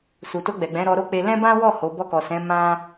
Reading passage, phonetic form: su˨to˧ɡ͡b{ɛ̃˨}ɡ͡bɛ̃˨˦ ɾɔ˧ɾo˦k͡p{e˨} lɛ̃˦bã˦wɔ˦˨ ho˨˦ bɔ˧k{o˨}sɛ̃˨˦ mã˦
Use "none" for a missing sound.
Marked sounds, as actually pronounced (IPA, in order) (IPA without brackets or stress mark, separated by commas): ɛ˨, e˧, ɔ˨